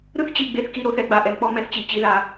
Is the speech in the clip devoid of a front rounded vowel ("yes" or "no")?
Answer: yes